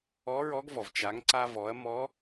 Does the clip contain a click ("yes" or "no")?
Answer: yes